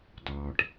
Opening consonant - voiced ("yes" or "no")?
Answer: yes